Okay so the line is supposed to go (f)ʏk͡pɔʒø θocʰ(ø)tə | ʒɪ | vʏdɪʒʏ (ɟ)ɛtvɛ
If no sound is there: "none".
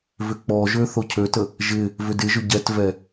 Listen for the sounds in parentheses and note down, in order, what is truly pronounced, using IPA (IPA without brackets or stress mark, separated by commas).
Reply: v, ø, ɟ